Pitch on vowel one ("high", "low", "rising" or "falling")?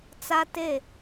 high